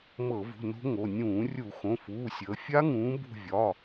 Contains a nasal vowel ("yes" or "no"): yes